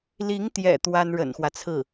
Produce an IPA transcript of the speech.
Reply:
l i˧˥ ŋ t̪ j ɛ̰˨˩ t̪ w a˥ n ɻ ə̰˨˩ n x w ä˦ t͡sʰ ɹ̩˥˩

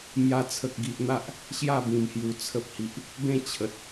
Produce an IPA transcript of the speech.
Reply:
m j a˧ t͡sʰ ə˨ k̚ ɡ i˨ ʔ n̪ a˦ ʔ | ɕ j a˥˧ b ĩ˨˩ m h j u˨˩ t͡sʰ ə˨ p̚ h i˨ ʔ | b ẽ˥˧ t͡ɕʰ ə˨ t̚

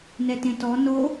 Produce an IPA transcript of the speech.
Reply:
n ɛ t ẽ t ɔ n o

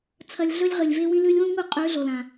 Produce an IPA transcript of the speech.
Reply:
t͡sʰ ɐ˧ lʲ ɮ ɵ˦ lʲ ʁ ɨ˨ lʲ v e˧ w ĩ˧ l ʉ˧ lʲ w ũ˦ ŋ u˦˨ qʼ ʉ˨˦ ɮ o˨ l ã˨

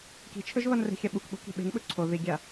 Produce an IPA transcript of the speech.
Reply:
k i̤ t͡ʃʰ ɵ ʒ β ɐ n r e̤ xʲ ɐ ɓ u k ɓ o̤ k i̤ ɓ e̤ n ɓ ɵ ǀʰ o ð i ɡʲ a

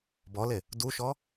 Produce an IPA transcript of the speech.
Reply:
b ɔ l e | d u ʃ ɔ

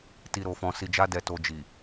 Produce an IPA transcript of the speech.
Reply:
t i˨ ɾ o˨ f ɔ̃˨ s i˨ d͡ʒ a˧ d ɛ˨ t o˨ d͡ʒ i˨

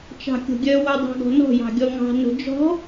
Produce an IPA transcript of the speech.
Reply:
t͡ʃ ɑ̤ kʲ o̤ ɡʲ œ w o dˤ ɑ̤ ɡ ɔ̤ n ɔ̤ j ɑ̤ ɡʲ ɔ ŋ ɑ̤ n o̤ d͡ʒ ɔ̤

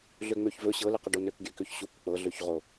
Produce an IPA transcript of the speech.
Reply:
ɮ ø ŋ͡m ø ç v ɵ ɕ ɤ l ɨ q ə ɖ o n ø k ɡʲ ø k ø ç ɕ u k k͡p ɤ ɮ ø ç ʁ o

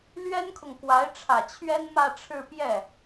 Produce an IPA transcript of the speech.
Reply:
l ɥ ɛ˥ n kʰ ʊ˨ ŋ k w a˧˥ ɪ̯ ʈ͡ʂʰ ä˨˩ t͡ɕʰ ɥ ɛ˥ n m ä˥˧ ʈ͡ʂʰ ɻ̩˥˧ p j ɛ˥˩

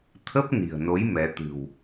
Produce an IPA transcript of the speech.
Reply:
t̪ʰ ə˦˥ p̚ n i̤˨˩ ə̯ n o˨˦ j m ɛ˨˦ t̪ ɨ̤˨˩ w

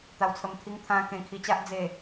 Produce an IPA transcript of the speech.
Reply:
t̪ a˨˩ w t͡sʰ ə˨˩ m t̪ʰ i˧ ŋ t̪ʰ ã˧ k ẽ˧ kʰ i˧ t͡ɕ a˦ ʔ d͡z e˨˩

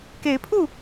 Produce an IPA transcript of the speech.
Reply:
k e˨˦ ɪ̯ pʰ u˥˨

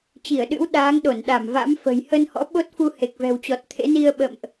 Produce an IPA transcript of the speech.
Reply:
t͡ɕ i˧˩ ə̯ ɗ ɨ̰˧˥ w ɗ aː˨˦ ŋ ɗ o˧˩ n ɗ a˧˩ m v a̰˧˥ m f ə̤˨˩ j h ə˧ n h ɔ̰˧˥ ɓ o˦˥ t̚ f u˧ h e˨˩ k̚ v ɛ̤˨˩ w t͡ɕ ɔ˨˩ t̚ t̪ʰ ḛ˧˥ n i˧ ə̯ ɓ ə̰˧˨ m ʔ

